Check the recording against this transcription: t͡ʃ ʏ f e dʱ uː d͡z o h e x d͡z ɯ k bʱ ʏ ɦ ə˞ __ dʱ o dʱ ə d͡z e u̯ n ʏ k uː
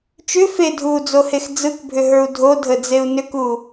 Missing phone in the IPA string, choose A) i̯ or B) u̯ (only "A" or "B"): B